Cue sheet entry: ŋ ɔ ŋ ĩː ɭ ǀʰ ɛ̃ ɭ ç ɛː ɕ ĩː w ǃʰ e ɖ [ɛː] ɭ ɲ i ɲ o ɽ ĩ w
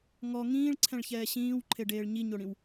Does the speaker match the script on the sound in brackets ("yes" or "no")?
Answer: no